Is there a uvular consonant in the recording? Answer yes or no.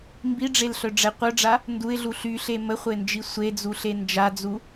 yes